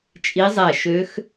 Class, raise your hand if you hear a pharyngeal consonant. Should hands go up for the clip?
no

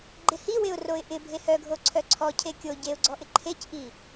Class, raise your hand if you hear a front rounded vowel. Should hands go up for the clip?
yes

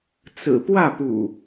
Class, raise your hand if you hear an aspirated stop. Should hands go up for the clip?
no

